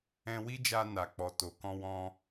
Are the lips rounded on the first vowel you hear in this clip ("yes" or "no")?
no